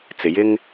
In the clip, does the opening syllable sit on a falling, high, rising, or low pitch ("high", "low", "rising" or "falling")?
low